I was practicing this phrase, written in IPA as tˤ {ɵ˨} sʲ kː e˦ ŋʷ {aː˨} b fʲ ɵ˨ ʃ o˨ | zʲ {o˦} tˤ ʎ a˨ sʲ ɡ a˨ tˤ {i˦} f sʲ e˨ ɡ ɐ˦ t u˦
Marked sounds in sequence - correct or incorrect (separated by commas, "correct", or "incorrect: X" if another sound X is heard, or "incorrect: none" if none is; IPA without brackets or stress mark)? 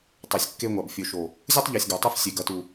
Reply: incorrect: o˨, incorrect: a˨, incorrect: u˦, correct